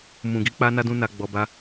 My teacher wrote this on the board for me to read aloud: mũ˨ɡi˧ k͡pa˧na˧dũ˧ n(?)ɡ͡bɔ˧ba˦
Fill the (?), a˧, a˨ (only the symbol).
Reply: a˧